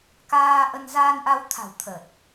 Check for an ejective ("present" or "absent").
absent